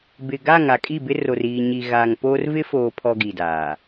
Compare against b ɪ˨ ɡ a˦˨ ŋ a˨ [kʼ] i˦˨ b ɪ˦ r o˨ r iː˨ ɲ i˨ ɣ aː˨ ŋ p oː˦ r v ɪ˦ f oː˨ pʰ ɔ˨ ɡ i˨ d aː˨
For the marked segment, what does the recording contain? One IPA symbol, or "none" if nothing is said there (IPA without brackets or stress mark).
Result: kʼ